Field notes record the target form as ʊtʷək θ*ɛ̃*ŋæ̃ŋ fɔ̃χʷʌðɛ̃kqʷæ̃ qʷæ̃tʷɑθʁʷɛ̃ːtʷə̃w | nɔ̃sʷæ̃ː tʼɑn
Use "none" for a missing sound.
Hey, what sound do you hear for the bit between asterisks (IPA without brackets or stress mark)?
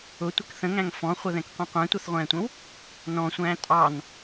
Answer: ə̃